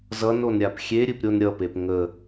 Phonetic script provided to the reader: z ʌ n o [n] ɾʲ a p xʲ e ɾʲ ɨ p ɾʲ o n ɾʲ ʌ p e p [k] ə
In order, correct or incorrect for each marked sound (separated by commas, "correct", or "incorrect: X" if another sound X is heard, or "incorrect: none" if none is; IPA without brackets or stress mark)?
correct, incorrect: ŋ